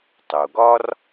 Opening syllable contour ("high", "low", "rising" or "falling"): low